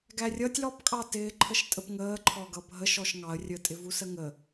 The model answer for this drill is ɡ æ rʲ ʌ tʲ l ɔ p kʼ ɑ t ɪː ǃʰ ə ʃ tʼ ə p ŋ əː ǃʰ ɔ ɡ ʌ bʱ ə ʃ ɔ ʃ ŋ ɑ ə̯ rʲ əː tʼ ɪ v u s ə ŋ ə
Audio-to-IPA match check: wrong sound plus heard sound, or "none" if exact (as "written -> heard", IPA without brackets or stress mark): none